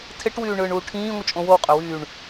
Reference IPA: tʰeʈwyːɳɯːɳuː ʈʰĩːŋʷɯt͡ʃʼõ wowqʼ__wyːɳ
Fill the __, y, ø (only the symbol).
ø